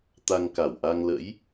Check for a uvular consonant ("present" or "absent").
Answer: absent